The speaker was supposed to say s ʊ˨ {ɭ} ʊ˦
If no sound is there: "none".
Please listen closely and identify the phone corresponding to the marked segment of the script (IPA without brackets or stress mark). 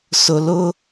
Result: l